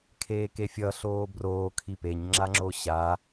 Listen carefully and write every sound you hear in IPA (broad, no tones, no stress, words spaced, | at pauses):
kʰeːkefʲʌ ɬoːbroː kʰipeɲ ŋ͡ǁaŋ͡ǁoɕa